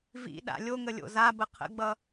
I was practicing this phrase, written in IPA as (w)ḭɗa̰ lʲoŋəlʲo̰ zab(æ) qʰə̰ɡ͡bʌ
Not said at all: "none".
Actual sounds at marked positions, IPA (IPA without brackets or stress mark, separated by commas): v, ə